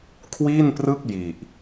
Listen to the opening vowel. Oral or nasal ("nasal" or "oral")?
oral